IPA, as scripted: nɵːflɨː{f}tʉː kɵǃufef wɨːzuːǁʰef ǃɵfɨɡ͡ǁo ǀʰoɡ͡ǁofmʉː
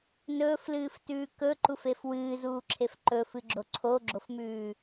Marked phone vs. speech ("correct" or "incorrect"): correct